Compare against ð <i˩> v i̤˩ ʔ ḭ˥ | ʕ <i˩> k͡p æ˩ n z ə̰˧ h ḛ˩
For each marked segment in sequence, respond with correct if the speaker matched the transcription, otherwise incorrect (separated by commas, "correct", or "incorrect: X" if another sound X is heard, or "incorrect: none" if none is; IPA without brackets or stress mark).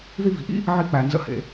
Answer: incorrect: i˧, incorrect: i˧